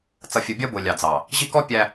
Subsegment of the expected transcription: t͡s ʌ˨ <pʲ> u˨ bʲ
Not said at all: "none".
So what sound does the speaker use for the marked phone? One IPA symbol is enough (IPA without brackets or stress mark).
fʲ